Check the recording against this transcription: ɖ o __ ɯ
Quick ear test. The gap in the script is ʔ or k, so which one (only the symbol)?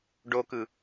k